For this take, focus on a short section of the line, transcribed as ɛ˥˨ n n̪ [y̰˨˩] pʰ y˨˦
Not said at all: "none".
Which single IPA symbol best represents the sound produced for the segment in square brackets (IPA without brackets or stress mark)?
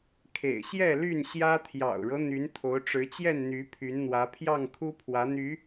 y˨˦